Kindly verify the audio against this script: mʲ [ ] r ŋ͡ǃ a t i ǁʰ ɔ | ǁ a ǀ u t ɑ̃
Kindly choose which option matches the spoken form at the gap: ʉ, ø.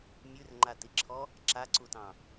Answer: ʉ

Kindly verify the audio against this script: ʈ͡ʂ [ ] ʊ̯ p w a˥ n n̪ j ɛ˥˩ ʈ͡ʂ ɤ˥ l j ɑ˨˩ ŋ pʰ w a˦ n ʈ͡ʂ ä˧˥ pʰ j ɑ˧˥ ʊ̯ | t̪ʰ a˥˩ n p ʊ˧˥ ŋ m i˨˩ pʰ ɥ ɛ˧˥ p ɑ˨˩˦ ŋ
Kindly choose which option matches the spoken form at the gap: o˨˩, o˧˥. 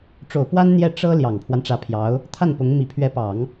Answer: o˨˩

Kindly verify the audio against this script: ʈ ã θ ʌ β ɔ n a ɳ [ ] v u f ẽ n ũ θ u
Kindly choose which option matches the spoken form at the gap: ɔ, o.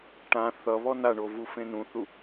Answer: o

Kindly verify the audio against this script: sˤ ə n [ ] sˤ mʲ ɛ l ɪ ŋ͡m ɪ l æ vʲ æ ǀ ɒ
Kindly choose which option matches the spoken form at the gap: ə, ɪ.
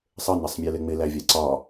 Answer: ɪ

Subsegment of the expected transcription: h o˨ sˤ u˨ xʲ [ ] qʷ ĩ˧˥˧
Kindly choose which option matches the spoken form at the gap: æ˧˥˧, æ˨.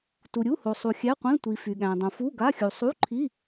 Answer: æ˧˥˧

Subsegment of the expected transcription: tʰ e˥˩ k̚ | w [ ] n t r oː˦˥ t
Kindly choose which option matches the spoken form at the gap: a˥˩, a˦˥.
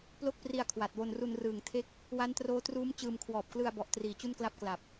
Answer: a˦˥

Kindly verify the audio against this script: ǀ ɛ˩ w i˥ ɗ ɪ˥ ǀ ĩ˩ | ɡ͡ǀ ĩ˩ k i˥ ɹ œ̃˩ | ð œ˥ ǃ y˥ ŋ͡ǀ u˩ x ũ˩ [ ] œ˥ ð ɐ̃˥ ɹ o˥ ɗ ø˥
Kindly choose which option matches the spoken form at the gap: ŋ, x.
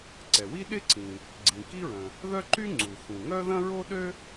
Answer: ŋ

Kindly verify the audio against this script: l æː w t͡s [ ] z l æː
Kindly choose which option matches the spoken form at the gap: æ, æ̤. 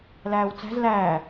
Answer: æ̤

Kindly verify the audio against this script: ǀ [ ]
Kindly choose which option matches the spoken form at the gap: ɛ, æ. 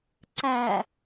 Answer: æ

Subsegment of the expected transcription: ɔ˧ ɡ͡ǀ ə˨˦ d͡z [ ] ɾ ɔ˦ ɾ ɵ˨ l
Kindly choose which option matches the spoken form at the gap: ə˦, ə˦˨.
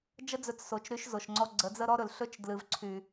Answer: ə˦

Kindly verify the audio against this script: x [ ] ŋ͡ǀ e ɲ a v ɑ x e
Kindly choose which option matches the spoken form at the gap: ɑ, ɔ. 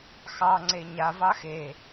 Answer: ɑ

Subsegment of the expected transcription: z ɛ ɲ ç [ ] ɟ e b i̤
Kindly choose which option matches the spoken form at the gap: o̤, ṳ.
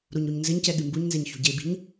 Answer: o̤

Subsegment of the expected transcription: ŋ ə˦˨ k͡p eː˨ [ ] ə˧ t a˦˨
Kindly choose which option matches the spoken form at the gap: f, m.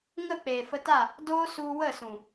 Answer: f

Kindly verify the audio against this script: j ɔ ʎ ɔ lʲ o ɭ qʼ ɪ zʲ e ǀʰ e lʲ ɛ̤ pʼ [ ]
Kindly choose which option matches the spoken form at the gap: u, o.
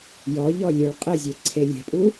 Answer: u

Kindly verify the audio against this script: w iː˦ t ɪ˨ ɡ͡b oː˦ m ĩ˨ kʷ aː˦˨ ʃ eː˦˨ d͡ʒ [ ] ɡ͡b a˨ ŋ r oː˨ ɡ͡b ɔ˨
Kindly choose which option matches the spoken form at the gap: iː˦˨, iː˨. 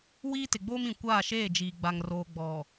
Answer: iː˨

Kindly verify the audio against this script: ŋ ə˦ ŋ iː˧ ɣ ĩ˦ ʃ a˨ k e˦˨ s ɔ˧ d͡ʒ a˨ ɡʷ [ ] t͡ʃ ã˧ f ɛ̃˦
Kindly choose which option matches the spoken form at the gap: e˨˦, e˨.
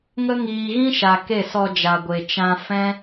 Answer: e˨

